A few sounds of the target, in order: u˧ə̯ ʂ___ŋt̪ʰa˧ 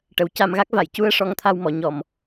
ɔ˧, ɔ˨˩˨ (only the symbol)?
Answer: ɔ˧